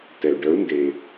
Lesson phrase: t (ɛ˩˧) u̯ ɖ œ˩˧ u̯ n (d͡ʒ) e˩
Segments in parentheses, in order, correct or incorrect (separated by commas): incorrect, incorrect